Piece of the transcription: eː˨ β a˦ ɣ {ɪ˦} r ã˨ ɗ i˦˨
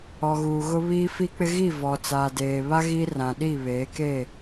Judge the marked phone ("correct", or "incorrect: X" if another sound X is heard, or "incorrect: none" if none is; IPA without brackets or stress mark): incorrect: i˦